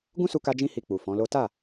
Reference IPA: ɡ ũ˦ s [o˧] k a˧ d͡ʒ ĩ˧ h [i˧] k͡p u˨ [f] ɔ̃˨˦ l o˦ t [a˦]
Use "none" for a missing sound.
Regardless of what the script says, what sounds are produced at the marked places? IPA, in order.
u˧, i˧, f, a˦˨

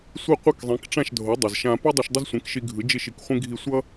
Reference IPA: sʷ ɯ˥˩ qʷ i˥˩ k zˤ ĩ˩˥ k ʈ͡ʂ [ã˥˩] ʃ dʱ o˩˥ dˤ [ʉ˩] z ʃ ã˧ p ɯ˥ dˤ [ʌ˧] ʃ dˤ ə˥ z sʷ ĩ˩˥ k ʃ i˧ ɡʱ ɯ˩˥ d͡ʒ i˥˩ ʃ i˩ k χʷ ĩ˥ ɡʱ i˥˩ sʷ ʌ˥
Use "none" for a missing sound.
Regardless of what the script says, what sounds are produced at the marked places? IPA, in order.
ã˥˩, ə˩, ʌ˧

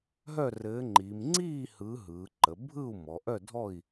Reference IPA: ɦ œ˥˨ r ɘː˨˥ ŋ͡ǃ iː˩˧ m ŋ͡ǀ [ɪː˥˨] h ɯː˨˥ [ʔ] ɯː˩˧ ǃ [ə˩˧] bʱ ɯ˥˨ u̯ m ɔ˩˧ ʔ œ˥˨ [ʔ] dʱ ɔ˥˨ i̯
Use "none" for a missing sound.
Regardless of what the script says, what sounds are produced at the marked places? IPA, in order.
iː˥˨, ɦ, ə˩˧, none

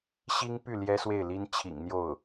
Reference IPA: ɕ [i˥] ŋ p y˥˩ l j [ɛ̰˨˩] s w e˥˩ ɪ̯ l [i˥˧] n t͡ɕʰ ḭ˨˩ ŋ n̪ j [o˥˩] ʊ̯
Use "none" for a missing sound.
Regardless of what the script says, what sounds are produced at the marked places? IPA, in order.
i˥, ɛ˥, i˥, o˥˩

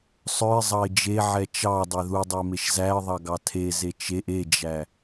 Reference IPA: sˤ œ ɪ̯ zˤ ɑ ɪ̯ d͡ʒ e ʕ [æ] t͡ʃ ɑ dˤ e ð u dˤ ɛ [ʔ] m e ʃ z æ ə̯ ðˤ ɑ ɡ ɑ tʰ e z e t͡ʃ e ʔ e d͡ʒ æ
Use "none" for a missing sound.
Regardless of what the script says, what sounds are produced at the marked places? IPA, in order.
ɛ, none

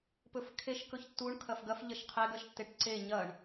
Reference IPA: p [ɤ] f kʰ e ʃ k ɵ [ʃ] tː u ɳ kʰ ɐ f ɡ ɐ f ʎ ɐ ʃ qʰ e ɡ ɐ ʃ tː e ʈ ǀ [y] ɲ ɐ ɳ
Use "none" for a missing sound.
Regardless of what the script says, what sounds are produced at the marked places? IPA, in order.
ɵ, ç, e

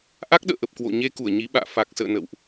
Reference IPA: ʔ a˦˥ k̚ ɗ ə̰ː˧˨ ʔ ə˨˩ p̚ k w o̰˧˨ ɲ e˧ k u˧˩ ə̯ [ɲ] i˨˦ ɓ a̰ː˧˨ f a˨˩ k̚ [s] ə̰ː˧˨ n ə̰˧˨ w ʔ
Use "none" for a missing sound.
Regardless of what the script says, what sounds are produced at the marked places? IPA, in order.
ɲ, s

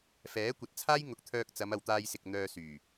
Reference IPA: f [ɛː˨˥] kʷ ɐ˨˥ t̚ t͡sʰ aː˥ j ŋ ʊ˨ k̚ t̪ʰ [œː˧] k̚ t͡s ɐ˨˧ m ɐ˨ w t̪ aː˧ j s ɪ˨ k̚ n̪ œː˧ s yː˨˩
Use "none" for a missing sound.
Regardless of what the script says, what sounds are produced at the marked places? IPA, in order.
ɛː˨˥, œː˧

